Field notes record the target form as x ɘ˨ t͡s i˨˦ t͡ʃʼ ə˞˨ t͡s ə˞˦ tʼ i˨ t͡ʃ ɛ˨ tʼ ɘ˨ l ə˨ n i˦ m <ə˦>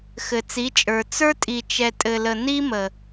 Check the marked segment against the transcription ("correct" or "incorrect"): incorrect